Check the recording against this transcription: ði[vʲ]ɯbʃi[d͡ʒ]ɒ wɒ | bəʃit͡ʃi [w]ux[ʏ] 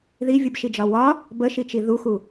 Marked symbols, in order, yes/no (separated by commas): yes, yes, no, no